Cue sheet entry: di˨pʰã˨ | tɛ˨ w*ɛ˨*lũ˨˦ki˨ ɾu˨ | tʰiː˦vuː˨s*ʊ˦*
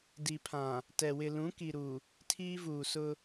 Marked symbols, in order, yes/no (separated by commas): no, yes